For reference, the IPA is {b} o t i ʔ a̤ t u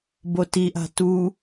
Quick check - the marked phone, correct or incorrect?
correct